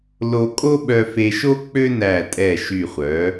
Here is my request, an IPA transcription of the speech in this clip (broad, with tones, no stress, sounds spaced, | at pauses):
l o˧ kʼ o˥ ɓ œ˧ f e˧ ʃ o˥ k͡p ø˥ n æ˧˩ tʼ ɛ˧˩ ʃ y˧˩ χʷ œ˩˧